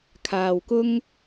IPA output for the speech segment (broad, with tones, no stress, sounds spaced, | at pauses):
kʰ aː˨ w k ʊ˥ ŋ